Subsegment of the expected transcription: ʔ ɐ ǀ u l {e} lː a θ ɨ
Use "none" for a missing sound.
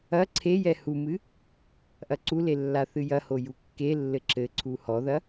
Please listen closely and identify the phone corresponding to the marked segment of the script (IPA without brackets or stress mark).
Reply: e